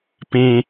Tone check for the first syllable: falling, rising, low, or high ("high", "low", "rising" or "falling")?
low